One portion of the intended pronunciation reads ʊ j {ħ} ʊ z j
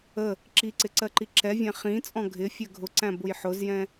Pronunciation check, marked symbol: correct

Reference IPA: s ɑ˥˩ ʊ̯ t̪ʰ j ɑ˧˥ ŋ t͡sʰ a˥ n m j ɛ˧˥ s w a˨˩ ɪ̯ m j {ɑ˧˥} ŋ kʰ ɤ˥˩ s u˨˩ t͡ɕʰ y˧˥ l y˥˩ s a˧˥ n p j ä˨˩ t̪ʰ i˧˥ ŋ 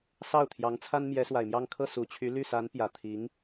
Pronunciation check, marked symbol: incorrect: ɑ˥˧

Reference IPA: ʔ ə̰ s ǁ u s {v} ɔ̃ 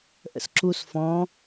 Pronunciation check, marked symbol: incorrect: f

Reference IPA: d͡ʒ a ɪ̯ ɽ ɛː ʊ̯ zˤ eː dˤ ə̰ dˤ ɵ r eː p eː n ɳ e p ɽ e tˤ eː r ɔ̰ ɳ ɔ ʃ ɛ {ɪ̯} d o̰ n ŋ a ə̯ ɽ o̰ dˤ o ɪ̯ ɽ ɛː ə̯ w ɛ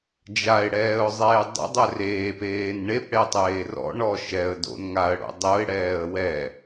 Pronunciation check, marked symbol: incorrect: ə̯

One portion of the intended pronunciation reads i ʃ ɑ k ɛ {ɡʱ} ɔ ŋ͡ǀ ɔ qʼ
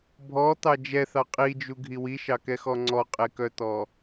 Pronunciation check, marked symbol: incorrect: x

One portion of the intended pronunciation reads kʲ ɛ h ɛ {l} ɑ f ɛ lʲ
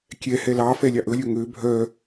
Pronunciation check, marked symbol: correct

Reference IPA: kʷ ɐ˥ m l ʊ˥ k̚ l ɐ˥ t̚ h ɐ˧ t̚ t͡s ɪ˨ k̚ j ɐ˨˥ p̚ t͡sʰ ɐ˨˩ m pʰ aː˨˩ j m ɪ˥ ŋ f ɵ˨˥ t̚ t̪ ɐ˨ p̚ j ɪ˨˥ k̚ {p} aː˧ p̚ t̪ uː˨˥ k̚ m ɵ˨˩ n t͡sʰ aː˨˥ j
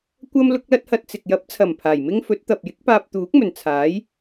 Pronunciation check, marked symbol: correct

